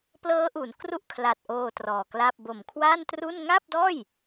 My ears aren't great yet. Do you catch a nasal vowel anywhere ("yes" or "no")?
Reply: no